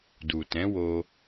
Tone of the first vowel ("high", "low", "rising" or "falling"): low